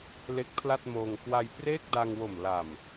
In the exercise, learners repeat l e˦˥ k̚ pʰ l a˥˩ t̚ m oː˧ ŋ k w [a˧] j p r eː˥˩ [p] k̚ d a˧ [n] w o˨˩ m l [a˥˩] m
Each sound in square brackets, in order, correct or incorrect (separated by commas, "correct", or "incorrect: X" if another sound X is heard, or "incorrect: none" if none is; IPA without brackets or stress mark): correct, incorrect: none, incorrect: ŋ, incorrect: a˨˩